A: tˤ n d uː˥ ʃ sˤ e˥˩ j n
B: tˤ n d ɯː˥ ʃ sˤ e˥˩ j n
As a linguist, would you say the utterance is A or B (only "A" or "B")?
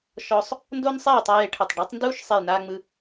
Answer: A